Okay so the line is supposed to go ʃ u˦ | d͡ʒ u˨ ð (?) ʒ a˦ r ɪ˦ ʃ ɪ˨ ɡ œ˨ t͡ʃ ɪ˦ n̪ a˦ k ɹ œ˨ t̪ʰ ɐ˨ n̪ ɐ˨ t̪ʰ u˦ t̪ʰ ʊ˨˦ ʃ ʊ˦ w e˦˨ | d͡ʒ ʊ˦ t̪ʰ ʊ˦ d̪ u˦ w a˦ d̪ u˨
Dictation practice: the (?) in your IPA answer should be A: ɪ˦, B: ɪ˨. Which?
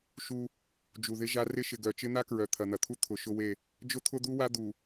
A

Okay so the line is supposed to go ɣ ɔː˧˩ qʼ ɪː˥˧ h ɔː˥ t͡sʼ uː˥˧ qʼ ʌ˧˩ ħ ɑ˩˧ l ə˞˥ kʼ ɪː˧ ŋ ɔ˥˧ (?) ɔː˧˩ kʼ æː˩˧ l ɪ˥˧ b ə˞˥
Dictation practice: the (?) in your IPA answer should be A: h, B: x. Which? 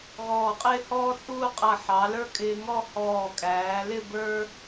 A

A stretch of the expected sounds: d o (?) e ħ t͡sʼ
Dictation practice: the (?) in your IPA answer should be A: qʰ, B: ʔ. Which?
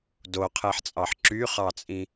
A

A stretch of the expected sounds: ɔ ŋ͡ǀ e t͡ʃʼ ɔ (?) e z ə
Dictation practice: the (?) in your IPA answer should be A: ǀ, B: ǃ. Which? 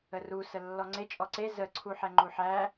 A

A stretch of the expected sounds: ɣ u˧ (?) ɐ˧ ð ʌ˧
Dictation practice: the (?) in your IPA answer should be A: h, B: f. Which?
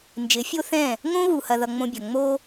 A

